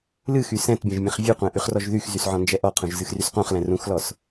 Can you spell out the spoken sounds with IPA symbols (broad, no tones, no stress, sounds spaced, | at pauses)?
l ɨ x y s ɛ̃ t bʲ ɛ̃ ʒ mʲ ɛ̃ χ vʲ ɨ qʷ ɛ̃ ʔ y χ r ɔ ʒ ð y x z y s ʕ ɔ̃ n d͡ʒ ɛ ʔ ɔ qʰ ũ ʒ z ɨ x r y s q ũ χ l ɛ̃ r ũ x l ɔ s